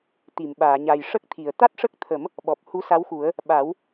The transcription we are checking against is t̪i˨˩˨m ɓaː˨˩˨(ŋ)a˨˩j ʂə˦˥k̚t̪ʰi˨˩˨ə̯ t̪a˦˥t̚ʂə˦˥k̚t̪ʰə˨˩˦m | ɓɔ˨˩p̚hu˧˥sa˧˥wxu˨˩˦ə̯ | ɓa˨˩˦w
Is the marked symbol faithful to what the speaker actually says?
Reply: no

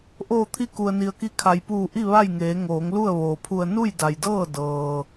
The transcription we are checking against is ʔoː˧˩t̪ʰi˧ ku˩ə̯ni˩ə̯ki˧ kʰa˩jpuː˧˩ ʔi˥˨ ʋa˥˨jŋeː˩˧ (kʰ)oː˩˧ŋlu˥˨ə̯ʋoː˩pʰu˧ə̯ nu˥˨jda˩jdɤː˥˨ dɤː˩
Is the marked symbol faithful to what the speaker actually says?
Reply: no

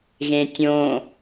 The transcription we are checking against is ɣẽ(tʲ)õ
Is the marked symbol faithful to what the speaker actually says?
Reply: yes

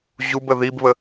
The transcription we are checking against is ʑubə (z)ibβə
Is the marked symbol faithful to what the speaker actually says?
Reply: no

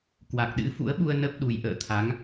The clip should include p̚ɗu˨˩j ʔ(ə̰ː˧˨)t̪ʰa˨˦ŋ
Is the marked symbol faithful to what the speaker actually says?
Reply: yes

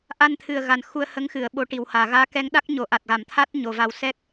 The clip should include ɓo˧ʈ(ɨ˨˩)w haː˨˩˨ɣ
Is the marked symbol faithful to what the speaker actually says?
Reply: no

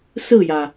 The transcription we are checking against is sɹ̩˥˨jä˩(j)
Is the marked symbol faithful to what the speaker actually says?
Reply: no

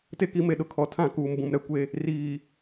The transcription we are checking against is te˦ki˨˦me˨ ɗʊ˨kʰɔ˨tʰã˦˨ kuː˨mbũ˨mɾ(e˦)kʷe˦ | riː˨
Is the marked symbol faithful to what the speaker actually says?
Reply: no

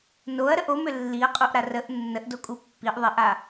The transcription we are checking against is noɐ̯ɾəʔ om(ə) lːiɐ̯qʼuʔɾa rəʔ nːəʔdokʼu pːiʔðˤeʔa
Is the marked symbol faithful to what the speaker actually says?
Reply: no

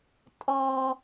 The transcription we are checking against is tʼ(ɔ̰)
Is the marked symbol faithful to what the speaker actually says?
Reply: no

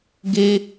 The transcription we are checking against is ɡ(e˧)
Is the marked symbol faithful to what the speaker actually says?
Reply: yes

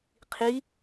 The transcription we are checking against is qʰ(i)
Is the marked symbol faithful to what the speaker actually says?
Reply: yes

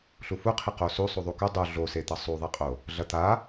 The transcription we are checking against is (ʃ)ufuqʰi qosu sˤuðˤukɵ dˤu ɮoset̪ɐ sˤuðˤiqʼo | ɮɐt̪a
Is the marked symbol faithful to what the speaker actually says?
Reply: no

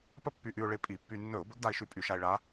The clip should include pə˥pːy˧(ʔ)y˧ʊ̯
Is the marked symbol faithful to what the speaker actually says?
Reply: yes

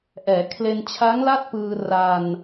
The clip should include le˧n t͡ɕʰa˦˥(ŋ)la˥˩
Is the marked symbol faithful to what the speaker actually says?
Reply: yes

